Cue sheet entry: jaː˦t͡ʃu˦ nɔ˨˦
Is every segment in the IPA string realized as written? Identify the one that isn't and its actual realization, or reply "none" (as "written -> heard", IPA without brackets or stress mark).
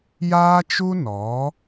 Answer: none